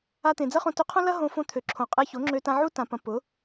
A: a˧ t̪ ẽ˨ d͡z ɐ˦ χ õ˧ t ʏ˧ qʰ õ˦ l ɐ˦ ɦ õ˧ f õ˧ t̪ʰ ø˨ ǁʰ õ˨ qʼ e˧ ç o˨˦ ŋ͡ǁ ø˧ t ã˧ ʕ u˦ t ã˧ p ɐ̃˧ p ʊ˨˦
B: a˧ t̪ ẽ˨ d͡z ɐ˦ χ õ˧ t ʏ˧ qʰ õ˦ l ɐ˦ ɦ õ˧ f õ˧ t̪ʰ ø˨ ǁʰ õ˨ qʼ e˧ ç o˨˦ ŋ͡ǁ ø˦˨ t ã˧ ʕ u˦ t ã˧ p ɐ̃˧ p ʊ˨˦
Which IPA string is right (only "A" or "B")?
A